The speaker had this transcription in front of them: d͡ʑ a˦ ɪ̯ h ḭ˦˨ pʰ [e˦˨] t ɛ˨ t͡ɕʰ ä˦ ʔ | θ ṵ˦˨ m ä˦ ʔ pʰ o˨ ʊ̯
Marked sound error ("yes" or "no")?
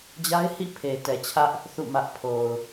yes